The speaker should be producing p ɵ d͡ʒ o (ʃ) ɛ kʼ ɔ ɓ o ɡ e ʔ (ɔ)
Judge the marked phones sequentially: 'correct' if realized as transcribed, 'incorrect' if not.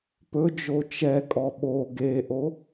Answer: incorrect: t͡ʃ, incorrect: o

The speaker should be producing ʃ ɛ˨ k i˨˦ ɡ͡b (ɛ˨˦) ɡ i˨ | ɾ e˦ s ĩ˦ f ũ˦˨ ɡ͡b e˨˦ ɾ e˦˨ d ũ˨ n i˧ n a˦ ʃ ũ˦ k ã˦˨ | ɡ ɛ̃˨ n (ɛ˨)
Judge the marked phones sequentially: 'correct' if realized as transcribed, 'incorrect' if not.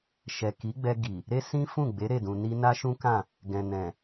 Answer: incorrect: ɛ˧, incorrect: ɛ̃˨

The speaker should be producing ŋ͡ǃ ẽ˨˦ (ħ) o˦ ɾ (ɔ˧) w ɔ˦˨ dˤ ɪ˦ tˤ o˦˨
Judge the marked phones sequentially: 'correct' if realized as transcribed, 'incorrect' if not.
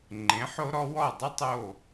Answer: correct, incorrect: ɔ˦

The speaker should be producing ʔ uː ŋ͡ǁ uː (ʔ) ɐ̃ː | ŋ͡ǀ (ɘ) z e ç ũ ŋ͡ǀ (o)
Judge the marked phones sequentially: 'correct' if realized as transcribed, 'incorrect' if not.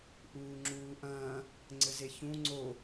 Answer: correct, correct, correct

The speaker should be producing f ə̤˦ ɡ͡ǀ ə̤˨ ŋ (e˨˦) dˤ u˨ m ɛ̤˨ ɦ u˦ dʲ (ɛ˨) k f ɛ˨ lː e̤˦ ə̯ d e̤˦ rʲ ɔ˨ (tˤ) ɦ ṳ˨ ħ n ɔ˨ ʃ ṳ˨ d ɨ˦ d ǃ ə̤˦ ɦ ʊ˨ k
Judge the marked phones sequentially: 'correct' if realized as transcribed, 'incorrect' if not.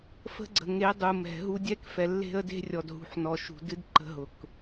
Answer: correct, incorrect: ɛ˦, incorrect: d

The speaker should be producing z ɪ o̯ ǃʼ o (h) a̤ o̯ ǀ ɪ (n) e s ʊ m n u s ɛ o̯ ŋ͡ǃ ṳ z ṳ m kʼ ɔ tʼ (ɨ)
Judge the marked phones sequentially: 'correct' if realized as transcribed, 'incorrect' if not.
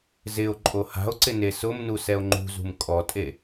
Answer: correct, correct, incorrect: e

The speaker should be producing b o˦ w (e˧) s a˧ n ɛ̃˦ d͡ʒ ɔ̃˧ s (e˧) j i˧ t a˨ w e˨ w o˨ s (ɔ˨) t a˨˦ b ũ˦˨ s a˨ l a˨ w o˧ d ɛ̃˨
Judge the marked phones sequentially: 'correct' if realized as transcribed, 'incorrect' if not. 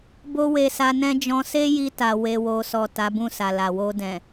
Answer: correct, incorrect: e˦, correct

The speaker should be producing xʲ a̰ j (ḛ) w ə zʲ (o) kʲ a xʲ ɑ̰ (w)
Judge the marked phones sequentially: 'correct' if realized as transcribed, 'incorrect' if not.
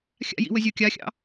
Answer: incorrect: ḭ, correct, incorrect: none

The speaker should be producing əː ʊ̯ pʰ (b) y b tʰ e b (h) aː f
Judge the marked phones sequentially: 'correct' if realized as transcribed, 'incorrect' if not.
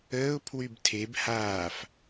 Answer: incorrect: w, correct

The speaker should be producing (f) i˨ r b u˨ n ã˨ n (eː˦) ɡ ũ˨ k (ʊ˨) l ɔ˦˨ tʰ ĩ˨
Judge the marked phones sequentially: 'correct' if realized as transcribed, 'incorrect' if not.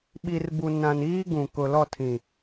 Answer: incorrect: ɓ, incorrect: iː˦, correct

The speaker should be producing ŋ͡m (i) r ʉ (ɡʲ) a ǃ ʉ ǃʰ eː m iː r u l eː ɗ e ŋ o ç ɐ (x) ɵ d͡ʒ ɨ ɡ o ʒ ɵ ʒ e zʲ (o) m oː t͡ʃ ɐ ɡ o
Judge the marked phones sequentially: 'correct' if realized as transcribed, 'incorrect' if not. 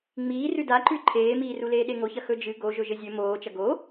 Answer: incorrect: iː, incorrect: d, correct, incorrect: ɵ

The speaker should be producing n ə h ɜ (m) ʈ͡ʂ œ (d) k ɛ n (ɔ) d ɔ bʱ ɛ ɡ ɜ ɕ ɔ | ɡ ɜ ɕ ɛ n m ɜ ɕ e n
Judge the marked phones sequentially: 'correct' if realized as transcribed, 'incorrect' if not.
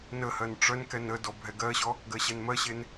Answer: incorrect: n, incorrect: n, incorrect: ə

